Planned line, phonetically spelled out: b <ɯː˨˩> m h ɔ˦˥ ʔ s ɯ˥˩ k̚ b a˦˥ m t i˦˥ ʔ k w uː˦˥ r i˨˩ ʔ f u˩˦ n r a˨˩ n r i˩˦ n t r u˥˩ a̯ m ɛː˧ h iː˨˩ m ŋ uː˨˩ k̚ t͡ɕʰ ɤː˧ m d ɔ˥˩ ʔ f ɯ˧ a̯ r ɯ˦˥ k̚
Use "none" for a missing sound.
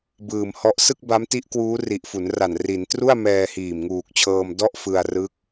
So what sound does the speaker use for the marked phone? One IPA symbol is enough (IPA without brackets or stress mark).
ɯː˨˩